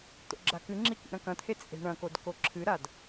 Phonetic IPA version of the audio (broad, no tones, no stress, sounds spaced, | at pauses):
t̪ o̰ ɡ͡ǁ a k ɨ ŋ͡ǁ i k ḭ ɾ ɐ̃ k ɐ̃ t̪ʰ e t͡sʼ e̤ ɳ ɐ̃ k o d k o ǁʰ ɨ ɾ a d